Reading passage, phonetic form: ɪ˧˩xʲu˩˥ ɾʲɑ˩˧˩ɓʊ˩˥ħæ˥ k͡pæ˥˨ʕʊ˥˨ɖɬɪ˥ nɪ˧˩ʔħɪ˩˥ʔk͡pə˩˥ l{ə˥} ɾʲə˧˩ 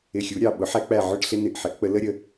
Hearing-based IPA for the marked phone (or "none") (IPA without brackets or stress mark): ə˥